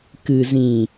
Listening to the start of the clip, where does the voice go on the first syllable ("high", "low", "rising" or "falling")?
low